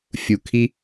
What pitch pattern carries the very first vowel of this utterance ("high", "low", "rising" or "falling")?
low